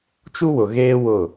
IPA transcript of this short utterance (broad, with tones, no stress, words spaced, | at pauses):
t͡ʃu˦wʊ˨ɣeː˦ wʊ˦˨